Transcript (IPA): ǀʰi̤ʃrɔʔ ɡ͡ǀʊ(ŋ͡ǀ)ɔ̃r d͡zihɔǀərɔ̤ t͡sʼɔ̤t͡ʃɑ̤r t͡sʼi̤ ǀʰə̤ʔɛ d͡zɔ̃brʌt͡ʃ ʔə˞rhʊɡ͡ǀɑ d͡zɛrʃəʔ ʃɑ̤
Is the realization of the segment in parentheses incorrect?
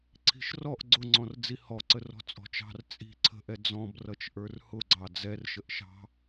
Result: no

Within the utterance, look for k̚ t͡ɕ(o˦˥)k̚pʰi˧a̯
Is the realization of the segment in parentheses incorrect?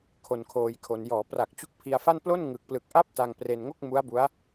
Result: yes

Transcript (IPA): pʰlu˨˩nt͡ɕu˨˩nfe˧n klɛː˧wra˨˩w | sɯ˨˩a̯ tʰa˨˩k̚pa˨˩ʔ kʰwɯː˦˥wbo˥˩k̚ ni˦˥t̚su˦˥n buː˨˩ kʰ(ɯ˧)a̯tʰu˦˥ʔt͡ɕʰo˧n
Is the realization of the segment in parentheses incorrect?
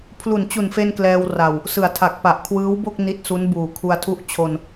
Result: yes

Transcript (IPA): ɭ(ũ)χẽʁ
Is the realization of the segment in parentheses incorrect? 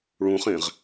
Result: no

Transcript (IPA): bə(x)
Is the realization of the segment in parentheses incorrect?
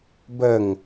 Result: yes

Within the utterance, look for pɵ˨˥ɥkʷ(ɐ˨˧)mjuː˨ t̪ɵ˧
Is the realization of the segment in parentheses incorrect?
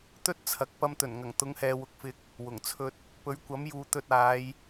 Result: yes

